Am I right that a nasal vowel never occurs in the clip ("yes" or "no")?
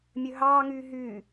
yes